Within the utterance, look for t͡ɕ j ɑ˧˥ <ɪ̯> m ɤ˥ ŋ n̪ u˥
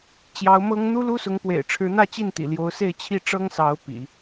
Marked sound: incorrect: ʊ̯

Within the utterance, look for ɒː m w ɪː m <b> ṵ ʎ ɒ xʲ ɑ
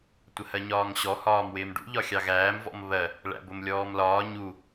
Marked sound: incorrect: ɖ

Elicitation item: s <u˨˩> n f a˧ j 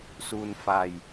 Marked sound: incorrect: u˧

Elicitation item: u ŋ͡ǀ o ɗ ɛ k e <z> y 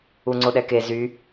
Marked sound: correct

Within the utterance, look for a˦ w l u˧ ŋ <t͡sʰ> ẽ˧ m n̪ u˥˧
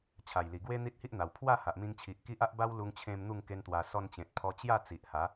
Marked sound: incorrect: t͡ɕʰ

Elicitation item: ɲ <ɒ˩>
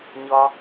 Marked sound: correct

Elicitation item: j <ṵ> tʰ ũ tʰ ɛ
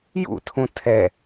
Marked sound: correct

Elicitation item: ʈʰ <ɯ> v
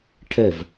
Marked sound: incorrect: ə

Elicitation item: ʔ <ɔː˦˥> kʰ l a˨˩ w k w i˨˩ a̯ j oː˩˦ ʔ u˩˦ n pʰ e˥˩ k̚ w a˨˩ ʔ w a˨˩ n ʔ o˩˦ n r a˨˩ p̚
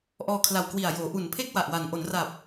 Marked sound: incorrect: ɔː˧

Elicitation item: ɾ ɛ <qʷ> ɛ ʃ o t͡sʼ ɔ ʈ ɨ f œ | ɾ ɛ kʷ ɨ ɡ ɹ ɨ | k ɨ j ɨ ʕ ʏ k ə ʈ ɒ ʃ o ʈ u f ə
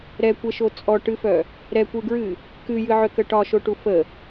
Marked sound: incorrect: kʷ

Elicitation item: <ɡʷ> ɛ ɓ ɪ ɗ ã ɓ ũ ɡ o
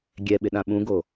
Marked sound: incorrect: ɡʲ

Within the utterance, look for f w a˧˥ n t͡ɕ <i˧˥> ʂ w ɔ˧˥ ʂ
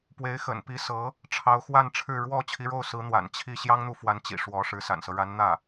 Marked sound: incorrect: ḭ˨˩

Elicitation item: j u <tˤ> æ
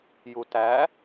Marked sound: incorrect: t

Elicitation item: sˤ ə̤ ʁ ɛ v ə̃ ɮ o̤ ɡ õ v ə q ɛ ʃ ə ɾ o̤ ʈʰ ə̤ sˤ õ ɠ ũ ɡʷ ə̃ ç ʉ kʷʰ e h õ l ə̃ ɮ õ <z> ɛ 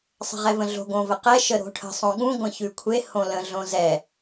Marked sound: correct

